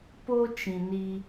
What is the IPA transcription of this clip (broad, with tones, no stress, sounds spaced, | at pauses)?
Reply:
p o˦ t͡ʃ ĩ˨ n i˦